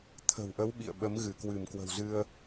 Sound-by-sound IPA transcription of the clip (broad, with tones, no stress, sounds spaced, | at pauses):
t̪ʰ ə̤˨˩ w ʔ ə˨˦ w ɓ ḭ˧˨ ə̯ ɓ ə˨˦ m ɣ ɨ˧˩ k w ɨ˧˩ m k w ə̤˨˩ w z ɨ˧ ə̯